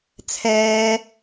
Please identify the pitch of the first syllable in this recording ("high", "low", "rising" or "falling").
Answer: low